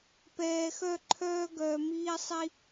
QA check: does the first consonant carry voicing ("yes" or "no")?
no